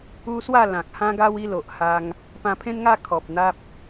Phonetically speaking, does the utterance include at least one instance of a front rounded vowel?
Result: no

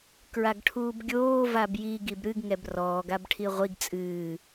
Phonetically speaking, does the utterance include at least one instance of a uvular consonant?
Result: yes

